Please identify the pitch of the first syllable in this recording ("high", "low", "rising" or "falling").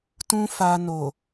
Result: high